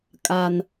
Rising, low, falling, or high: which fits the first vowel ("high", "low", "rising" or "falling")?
low